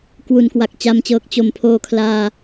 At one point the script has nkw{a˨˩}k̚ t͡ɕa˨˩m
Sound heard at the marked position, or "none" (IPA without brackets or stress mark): a˨˩